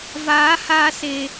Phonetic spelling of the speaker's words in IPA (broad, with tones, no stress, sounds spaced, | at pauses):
v aː˨˦ h aː˧ s e˨